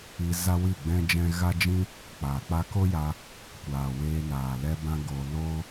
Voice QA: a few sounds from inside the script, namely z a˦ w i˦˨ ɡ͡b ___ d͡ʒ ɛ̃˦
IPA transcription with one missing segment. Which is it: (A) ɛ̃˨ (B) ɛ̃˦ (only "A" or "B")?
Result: B